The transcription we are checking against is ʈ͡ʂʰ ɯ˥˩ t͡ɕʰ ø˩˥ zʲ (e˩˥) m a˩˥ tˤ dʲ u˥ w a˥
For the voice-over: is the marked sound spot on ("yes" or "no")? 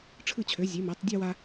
yes